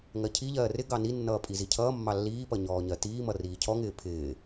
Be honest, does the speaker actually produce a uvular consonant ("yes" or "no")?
no